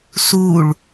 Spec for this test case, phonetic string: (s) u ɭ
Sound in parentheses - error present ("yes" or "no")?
no